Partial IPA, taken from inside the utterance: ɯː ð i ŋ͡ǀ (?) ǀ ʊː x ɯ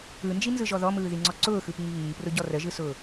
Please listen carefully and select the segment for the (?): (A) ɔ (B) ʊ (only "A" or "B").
A